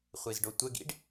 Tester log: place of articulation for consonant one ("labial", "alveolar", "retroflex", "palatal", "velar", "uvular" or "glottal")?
uvular